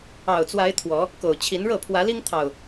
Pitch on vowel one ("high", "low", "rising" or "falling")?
low